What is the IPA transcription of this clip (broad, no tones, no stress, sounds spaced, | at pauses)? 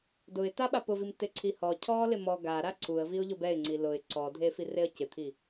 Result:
d ʊ ɪ̯ t a ɓ a p ʊ v i m t ɪ ǀʰ i h ɔ cʰ ɔ l ɪ m ɔ ɡ a ɾ a ǀ u ə̯ v i ʊ̯ ʎ ʊ b ɛ ɪ̯ ŋ͡ǀ i l ʊ ɪ̯ ǀ ɔ dʱ e f i r e ə̯ c ɪ t̪ʰ i